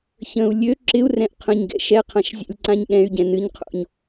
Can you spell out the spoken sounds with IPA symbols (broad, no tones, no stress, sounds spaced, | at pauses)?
ç ə̃ u̯ lʲ ø ǁ ɪ u̯ r ɛ̃ ʔ qʰ ə̃ ɲ ɡ ɛ̰ ʃ ɛ qʰ ã ʃ zʲ ɛ̰ lʲ ǀ ã ɲ ɠ ɛ̃ y̯ ɟ ɛ̃ n ɨ ɲ qʰ o̰ ɲ